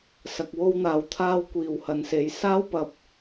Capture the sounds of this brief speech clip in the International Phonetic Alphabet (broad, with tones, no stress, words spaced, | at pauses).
sɐ˨k̚wo˧wn̪aː˨w t̪ʰaː˧wkʷiː˨whɐ˨nse˨˧j saː˥wpɐ˧p̚